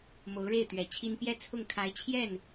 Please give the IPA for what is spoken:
m o˧˥ ʊ̯ ɻ e˥˩ ɪ̯ t̪ ɥ ɛ˨˩ t͡ɕʰ i˥ n p j ɛ˥˧ t͡sʰ ʊ˥˩ ŋ kʰ a˧˥ ɪ̯ t͡ɕʰ j ɛ˥˩ n

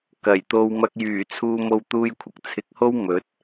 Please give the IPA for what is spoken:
k ɐ˨˩ j t̪ o˧ w m ɐ˧ k̚ j yː˨˩ t͡sʰ uː˧ m o˧ w t̪ uː˧ j kʷʰ ɐ˨ k̚ t͡sʰ ɪ˨˥ k̚ h o˥ w m ɵ˨˥ t̚

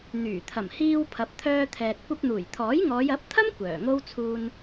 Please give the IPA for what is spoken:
n̪ yː˨˩ t̪ʰ ɐ˨˩ m h iː˧ w pʰ ɐ˨˥ p̚ t̪ʰ œː˧ t̪ʰ ɛː˨ t̚ kʷ ɐ˧ p̚ n̪ uː˨˩ j t̪ʰ ɔː˨˥ j ŋ ɔː˨˧ j ɐ˨˥ p̚ t̪ʰ ɐ˥ m kʷ œː˨˩ ŋ o˥ w t͡sʰ uː˧ n

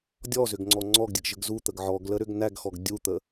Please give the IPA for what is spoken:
dʲ ɔ z ʏ ɡ ŋ͡ǀ ɔ ŋ͡ǀ ɔ ɡ dʲ ə ɡ ʒ ə ɡ z u t̪ ə ɡ ʕ ɔ ɡ l ə ɾ ʏ ɡ n æ ɡ x ɔ ɡ dʲ u t̪ ə

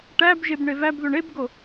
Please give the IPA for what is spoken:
ʈ æ b ʒ e b ɳ e v æ b ð o ɳ e b ɡ o

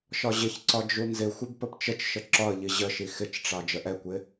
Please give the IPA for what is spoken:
ʃ ɒ ʑ ɪ ç ǀ ɒ d͡ʒ u n z ɪ xʷ ə b p ə p t͡ʃ ə t͡ʃ ʃ ə ǁ ɒ ə̯ ʎ i ʑ ə ʃ i x ɪ t͡ʃ ʈ͡ʂ ɑ d͡ʒ ə ʔ ɛ kʷ ɪ

